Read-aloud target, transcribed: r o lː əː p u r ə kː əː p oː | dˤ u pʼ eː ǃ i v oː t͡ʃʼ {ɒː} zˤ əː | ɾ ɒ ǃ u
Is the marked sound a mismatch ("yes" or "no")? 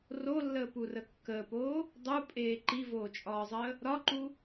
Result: no